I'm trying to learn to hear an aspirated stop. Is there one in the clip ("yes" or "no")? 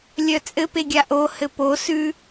no